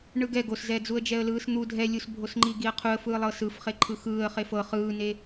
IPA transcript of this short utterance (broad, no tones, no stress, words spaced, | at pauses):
ɳɯɡɛ ɡoszɛːd͡zuə̯d͡ʒɛə̯ lɯːsn̪u dʱɛlʲusbʱosŋ͡ǃi ɡiə̯qʰuə̯fɯː lˠɤsɯfχeǃʰɯ xɯːə̯χef ɤ χɯːne